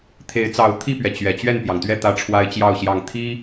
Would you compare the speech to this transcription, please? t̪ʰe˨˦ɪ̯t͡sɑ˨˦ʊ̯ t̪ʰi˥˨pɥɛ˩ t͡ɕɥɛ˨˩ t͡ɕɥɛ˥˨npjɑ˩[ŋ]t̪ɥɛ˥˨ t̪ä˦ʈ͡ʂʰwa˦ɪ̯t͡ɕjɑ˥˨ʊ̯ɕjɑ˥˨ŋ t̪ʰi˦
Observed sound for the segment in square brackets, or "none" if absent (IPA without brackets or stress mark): ŋ